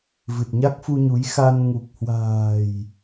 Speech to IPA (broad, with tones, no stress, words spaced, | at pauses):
vɨ˨˩t̚ɲa˦˥k̚fu˧ɲu˨˦j xa˧n ŋu˨˩k̚hwa̤ː˨˩j